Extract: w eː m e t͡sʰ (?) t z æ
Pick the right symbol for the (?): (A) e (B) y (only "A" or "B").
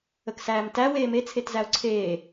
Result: A